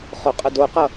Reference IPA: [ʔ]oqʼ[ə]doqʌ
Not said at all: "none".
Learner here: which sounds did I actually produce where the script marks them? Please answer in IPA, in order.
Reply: χ, ə

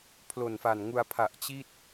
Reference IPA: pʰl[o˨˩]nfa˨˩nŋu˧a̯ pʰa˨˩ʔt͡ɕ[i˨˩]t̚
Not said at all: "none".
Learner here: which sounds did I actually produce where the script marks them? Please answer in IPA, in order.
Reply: o˨˩, i˥˩

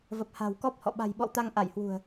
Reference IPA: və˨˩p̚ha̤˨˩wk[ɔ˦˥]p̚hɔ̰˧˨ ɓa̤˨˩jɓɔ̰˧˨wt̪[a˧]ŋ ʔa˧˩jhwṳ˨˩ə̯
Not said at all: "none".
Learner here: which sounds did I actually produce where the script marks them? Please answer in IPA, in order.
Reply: ɔ˦˥, a˧

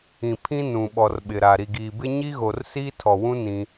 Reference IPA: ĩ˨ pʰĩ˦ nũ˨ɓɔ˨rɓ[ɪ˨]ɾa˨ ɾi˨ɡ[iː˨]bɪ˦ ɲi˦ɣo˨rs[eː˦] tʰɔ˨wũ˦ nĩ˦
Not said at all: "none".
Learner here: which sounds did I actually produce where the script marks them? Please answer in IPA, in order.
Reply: ɪ˨, iː˨, iː˦

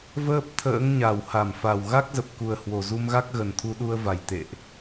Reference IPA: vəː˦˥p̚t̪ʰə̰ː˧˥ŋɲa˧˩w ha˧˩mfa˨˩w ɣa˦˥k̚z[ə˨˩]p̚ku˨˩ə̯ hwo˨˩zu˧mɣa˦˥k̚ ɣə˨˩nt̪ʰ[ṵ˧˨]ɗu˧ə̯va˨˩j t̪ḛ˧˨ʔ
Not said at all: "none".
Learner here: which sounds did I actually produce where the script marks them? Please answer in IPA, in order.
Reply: ə˨˩, u˧

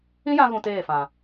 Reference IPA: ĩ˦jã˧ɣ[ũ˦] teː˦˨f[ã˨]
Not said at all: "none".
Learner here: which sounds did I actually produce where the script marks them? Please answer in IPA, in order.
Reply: ũ˨, ã˨

